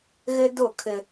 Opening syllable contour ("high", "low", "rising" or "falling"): high